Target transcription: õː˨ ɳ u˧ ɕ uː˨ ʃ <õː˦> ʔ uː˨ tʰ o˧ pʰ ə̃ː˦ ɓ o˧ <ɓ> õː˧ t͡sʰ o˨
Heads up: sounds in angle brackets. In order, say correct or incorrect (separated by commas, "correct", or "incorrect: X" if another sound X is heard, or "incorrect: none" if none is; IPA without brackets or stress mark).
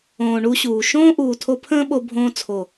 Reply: correct, incorrect: bʱ